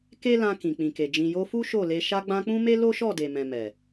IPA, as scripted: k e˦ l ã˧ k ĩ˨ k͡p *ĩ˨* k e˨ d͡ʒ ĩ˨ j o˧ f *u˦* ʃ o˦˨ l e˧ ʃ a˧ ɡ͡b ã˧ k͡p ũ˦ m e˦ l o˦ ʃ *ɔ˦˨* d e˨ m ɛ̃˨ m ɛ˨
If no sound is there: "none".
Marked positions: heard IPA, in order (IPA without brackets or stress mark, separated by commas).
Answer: ĩ˨, u˦, ɔ˦˨